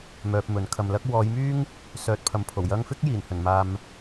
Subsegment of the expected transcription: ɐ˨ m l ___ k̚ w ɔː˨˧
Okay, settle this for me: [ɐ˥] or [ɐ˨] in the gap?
ɐ˥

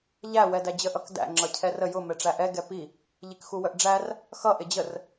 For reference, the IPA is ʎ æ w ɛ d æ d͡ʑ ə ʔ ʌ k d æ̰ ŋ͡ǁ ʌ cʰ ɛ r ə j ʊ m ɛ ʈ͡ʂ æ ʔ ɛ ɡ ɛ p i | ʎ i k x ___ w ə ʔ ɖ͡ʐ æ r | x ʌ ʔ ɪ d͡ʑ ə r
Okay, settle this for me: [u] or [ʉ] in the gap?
u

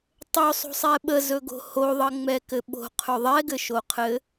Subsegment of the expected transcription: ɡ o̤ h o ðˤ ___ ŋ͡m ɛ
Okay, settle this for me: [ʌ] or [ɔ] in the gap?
ʌ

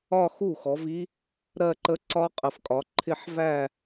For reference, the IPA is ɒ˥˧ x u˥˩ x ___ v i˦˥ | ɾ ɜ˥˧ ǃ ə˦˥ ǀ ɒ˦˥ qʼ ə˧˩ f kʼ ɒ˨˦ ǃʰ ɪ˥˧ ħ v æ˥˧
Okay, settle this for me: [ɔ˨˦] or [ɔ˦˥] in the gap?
ɔ˨˦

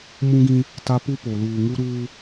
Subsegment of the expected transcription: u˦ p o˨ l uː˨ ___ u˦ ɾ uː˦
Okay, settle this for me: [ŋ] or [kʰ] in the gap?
ŋ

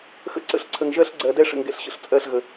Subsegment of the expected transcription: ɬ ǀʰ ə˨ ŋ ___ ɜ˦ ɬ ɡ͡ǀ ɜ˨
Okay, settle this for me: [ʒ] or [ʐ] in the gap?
ʒ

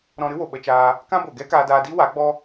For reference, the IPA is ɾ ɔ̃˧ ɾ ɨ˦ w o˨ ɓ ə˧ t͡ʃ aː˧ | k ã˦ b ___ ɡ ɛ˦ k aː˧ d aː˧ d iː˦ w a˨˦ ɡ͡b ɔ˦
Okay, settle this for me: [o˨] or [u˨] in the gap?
o˨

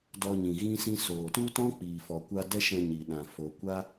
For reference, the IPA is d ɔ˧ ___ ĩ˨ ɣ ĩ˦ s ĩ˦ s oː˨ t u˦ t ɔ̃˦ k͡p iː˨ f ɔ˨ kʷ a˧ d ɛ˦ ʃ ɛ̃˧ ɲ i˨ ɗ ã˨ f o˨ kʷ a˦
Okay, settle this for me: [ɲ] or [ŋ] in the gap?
ɲ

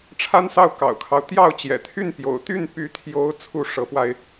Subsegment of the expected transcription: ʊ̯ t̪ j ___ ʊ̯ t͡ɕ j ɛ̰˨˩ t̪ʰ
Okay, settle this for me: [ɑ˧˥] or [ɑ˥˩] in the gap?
ɑ˥˩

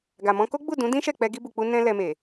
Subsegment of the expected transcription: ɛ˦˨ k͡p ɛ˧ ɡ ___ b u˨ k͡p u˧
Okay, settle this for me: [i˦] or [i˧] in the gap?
i˧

